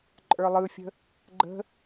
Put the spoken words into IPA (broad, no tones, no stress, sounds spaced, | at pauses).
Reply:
ǃʼ ə˞ lˠ ɯ fʲ ə̤ | ɡ͡ǃ ə̤